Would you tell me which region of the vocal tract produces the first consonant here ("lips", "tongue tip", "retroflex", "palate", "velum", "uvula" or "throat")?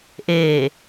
throat